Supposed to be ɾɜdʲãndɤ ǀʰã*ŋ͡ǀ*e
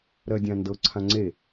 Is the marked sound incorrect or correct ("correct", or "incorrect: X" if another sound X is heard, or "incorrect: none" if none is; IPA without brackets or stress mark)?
correct